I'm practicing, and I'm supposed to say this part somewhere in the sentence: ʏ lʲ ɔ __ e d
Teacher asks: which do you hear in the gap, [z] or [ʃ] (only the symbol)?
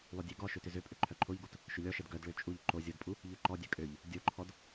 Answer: ʃ